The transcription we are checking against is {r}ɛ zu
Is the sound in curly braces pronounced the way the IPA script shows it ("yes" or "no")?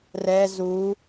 yes